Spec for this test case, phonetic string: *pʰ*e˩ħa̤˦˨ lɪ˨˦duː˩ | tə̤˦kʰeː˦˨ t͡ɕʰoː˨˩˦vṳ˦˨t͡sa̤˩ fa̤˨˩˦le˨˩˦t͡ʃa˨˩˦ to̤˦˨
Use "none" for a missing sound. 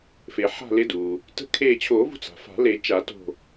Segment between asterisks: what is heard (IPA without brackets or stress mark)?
f